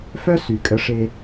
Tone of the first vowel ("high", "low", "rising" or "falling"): high